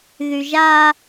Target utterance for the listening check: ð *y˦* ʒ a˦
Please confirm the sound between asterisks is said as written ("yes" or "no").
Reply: no